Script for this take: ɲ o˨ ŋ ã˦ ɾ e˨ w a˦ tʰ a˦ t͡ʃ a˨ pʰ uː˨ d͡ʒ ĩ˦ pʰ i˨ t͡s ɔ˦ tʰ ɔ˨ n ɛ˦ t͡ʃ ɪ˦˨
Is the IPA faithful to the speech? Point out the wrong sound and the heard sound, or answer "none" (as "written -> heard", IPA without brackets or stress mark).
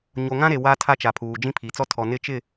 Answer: ɛ˦ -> ɪ˦